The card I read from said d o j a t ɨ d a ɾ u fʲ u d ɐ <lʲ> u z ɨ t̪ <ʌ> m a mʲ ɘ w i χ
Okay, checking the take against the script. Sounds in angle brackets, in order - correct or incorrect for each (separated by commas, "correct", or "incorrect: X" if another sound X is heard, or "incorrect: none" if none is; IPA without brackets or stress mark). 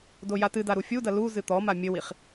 incorrect: l, incorrect: ɔ